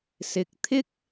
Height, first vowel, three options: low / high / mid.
high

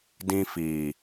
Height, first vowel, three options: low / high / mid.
high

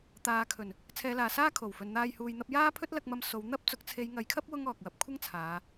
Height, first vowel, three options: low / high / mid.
low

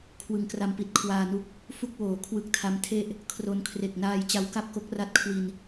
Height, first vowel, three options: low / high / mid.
high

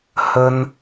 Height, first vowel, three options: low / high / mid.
mid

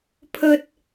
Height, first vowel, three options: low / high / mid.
mid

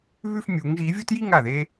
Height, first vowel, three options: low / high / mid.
high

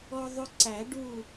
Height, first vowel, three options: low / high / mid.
mid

